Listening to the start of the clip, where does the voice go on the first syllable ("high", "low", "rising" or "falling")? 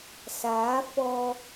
rising